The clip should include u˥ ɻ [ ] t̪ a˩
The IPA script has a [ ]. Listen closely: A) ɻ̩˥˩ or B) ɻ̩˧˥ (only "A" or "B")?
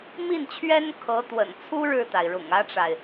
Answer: A